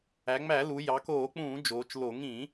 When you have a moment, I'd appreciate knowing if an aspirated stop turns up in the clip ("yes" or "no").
no